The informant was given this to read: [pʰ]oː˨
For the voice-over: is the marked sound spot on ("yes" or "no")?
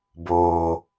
no